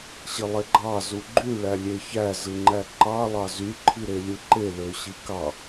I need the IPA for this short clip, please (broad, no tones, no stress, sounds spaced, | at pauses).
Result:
ɕ i lˠ e ɡ͡ǃ ɑ z u ɡ͡ǃ y ɭ æ lʲ e ç æ z ɯ ŋ͡ǃ æ ǃ ɑ lˠ ɑ z y ǃʰ i ɾ e lʲ ɯ ǃ e l ø ɕ i k ɑ